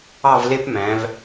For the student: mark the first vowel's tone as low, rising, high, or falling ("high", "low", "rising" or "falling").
falling